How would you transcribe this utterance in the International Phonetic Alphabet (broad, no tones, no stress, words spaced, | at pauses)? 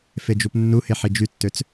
fed͡ʒupnːuhe ħid͡ʒytːøt͡s